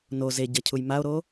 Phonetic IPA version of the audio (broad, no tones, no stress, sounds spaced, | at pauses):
n o z e ɟ ɐ cʰ u j m a o̯ ɾ o